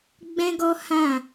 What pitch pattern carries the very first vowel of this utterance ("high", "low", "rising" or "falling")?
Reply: high